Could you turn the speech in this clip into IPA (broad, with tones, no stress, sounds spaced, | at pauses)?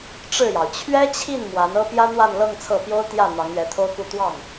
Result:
ʈ͡ʂ ɻ̩˥˩ j ɑ˩ ʊ̯ t͡ɕʰ ɥ ɛ˥ t͡ɕʰ i˥˩ n m w a˧˥ n ɤ˥ p j ä˥ n̪ w a˥˧ n l ɤ˥˧ ŋ t͡sʰ ɤ˥˩ p j o˥ ʊ̯ t̪ j ä˥˩ n̪ ɑ˧˥ ŋ ɥ ɛ˧˥ t̪ʰ o˥ ʊ̯ k u˥˧ t̪ w ɑ˥˩ ŋ